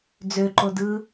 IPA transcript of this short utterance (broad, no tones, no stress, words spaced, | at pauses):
d͡zøǃodɯ